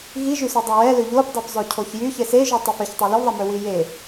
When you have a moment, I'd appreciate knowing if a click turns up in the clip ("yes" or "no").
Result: no